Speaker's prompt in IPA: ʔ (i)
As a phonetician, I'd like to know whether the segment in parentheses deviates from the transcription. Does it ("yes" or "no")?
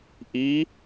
no